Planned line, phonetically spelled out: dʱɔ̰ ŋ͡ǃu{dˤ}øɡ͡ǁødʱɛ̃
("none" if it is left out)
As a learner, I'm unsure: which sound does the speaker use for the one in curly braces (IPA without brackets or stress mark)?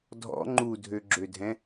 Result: dʱ